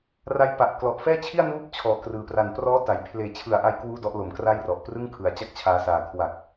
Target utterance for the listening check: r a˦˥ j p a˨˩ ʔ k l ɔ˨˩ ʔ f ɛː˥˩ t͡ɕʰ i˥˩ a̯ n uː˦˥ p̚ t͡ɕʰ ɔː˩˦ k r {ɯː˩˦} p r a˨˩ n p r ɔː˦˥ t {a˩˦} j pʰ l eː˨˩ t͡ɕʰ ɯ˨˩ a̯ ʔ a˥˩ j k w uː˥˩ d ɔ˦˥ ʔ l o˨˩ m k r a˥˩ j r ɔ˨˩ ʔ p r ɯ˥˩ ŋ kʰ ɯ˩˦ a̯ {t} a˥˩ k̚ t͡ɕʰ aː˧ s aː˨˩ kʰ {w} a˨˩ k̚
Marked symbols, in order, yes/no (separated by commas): yes, yes, no, yes